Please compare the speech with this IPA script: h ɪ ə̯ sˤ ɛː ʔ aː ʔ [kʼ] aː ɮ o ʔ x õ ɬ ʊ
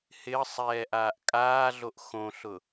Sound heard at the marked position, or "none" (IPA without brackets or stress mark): kʼ